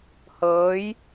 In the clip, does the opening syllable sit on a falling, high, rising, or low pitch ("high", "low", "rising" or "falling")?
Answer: rising